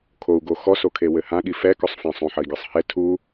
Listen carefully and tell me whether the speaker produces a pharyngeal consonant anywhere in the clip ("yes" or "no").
yes